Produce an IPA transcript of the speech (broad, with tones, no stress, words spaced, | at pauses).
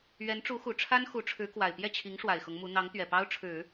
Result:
ɥɛ˧˥nʈ͡ʂu˧˥xu˨˩ ʈ͡ʂʰa˥n xu˧˥ʈ͡ʂʰɻ̩˧˥kwa˨˩ɪ̯ pjɛ˥˩t͡ɕʰi˧˥ŋ ʂwa˨˩ɪ̯xʊ˧˥ŋmu˧˥ n̪ɑ˧˥ŋ t̪ɥɛ˨˩pɑ˥ʊ̯ʈ͡ʂʰɻ̩˨˩˦